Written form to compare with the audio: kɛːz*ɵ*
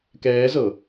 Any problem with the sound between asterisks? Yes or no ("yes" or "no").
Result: yes